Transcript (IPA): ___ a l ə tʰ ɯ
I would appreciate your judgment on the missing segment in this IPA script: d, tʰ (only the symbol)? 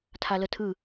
tʰ